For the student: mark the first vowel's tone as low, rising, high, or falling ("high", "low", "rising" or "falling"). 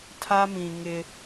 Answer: high